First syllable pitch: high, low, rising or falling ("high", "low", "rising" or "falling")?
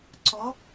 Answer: rising